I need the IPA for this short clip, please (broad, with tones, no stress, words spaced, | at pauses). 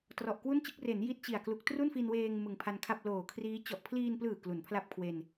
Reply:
trɔ˨˩ʔkwu˥˩nt͡ɕɯ˥˩k̚ re˩˦n ji˦˥t̚t͡ɕi˨˩a̯klu˨˩k̚ tru˥˩nfi˧nweː˧ŋ mɯ˨˩ŋpʰa˧nkʰa˥˩p̚ loː˨˩kʰriː˦˥ t͡ɕɔ˨˩ʔpʰliː˧nplɯː˨˩ klu˩˦npʰla˥˩p̚kʰwe˧n